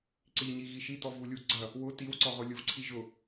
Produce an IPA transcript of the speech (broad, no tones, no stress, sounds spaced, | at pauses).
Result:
ǀ i ɲ i ɣ i ʃ i t ɔ v u lʲ u ɡ͡ǀ ɐ | w ʊ t i w ǀ ɔ ʁ ʊ lʲ ʊ v ǀʰ i ʒ ʊ